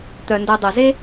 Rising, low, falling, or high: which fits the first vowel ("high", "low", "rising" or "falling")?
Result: low